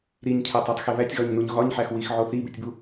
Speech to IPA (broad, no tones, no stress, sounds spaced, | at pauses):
ɾ i ɲ cʰ æ tˤ o tˤ x e β æ tʲ ɣ ɒ ɲ n u ɲ ɣ ɒ ɲ ħ æ x w i x ʕ o θ i b i tʲ b u